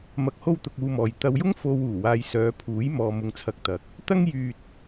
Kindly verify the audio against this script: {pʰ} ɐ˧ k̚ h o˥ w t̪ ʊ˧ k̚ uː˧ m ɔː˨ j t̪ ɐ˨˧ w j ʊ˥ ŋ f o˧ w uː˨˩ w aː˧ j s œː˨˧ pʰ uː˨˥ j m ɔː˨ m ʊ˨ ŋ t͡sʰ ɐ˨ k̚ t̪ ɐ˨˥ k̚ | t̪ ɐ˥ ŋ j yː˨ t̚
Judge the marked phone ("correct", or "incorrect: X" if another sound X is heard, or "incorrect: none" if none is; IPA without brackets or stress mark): incorrect: m